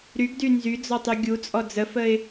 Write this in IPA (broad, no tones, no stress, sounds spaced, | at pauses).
ɾ y ɡ d y n z y d͡z ɔ tˤ y ɡʲ u t͡sʼ ɔ d͡z ə f ə ɪ̯